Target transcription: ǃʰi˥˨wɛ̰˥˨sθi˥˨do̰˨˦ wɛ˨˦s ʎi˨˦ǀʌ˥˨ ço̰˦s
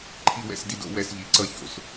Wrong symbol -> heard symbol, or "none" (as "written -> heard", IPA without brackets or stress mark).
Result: θ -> d